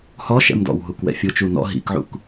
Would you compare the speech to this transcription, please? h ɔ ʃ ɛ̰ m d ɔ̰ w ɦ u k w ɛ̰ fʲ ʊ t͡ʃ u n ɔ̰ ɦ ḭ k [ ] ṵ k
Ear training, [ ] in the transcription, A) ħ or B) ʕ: B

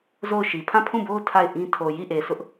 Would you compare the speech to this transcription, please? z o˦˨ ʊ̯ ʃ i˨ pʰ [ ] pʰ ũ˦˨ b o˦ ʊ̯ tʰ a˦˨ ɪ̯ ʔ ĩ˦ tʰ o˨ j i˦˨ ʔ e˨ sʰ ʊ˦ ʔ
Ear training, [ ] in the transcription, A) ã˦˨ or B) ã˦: A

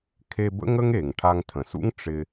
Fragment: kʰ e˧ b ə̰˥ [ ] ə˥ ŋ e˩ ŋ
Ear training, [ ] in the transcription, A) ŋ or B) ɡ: A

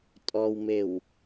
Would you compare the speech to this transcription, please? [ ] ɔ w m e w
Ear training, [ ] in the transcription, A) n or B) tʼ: B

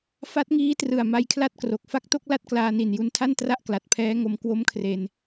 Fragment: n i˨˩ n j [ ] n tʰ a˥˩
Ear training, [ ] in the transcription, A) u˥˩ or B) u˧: B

